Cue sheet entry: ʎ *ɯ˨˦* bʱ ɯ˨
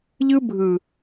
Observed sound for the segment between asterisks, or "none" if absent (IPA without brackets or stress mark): ɯ˦